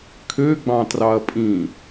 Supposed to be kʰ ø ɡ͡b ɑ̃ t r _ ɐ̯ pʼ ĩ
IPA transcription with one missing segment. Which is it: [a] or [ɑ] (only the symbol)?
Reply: ɑ